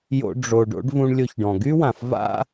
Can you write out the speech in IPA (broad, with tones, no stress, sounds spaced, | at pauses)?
j o̰˧ ɖ͡ʐ o˩ ɖ o̰˧˥ ɖ v ũ˧ ɳ lʲ o˧ ç ɖ ɔ̃˩ ɡ y˥ w ã˩ f v a̰˥